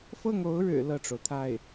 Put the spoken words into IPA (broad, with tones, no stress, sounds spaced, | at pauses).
f ɤ˥˩ ŋ o˧˥ ʊ̯ ɻ ɻ̩˨˩ l ɤ˥˩ ʈ͡ʂ o˩ ʊ̯ t̪ʰ a˥˩ ɪ̯